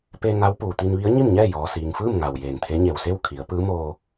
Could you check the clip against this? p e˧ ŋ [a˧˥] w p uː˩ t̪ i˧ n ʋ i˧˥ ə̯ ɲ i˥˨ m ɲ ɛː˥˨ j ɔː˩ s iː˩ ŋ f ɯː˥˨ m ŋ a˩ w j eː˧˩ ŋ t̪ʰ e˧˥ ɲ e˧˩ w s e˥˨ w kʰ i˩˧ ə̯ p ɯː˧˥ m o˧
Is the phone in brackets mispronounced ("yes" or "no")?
no